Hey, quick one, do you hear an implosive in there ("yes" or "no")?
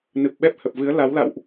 yes